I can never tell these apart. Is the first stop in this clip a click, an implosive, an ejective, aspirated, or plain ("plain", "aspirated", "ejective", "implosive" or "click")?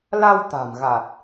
plain